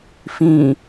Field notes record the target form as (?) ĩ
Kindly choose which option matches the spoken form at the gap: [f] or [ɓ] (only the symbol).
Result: f